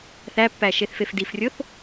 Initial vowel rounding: unrounded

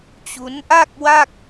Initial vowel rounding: rounded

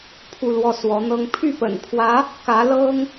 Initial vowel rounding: rounded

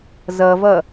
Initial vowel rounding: unrounded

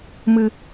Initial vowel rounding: unrounded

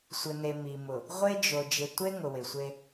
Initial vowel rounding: unrounded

